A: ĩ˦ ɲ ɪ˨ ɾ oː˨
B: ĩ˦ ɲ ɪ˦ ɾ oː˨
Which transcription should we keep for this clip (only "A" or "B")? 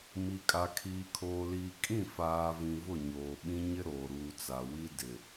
B